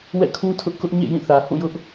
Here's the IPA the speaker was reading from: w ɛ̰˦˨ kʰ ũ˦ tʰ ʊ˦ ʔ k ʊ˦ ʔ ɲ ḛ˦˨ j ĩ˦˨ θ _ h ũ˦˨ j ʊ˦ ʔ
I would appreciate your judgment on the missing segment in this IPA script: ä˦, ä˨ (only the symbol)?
ä˨